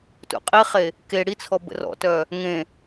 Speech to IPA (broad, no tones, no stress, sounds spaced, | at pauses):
t ṵ qʼ i χ e | k e ɽ i t͡sʰ ɔ b ə̰ r ɔ̰ t œ | ŋ ẽ